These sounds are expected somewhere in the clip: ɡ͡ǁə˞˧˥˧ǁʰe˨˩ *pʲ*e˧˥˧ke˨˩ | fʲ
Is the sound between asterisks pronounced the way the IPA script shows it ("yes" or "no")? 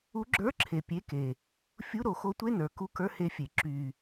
yes